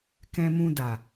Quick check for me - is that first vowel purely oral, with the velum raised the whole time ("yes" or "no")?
no